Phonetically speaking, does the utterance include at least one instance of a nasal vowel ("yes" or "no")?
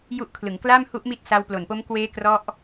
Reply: no